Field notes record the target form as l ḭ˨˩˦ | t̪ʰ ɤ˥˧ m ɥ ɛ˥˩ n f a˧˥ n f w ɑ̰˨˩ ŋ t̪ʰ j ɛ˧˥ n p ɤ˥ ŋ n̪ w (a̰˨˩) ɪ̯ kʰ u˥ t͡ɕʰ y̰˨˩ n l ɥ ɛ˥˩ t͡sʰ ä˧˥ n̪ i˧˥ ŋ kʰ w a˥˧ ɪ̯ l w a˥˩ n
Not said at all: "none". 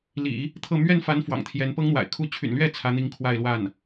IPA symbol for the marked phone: a̰˨˩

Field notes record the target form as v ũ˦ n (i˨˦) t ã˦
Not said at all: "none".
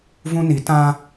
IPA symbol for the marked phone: i˨˦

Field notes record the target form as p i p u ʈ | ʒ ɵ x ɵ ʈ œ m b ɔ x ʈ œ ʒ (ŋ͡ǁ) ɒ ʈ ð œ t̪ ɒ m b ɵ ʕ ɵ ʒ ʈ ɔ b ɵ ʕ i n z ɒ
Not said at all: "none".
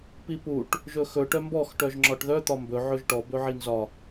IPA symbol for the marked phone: ŋ͡ǁ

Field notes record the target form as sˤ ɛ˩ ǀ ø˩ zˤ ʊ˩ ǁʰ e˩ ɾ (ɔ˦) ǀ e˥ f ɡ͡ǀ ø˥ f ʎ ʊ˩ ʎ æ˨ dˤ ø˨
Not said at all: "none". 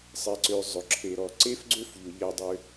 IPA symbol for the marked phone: ɔ˩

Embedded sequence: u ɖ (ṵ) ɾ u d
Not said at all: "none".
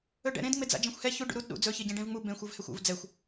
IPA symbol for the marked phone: ṵ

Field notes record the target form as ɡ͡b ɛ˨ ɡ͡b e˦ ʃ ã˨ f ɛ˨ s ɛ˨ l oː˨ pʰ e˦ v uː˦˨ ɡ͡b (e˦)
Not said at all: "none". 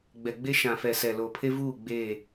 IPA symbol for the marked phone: e˦˨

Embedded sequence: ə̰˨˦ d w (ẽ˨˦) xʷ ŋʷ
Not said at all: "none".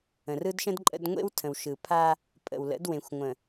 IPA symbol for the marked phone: ẽ˨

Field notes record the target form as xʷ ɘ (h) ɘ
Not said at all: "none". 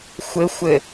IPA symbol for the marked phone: xʷ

